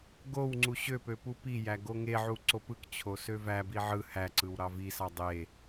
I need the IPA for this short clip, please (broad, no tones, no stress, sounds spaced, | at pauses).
ɡ o w ŋ͡ǀ u ɕ ø p ø p u p i j æ ɡ o ŋ e ʕ u ǀ o p ɯ k t͡ɕʰ o s ø v æ b i ʕ ɯ h æ ǀ ɯ w ɾ ɑ v i s ɑ dˤ e